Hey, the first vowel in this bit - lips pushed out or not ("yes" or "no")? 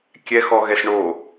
no